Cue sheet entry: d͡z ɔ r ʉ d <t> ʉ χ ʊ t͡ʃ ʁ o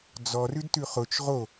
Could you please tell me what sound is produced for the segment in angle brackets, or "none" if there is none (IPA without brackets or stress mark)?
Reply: t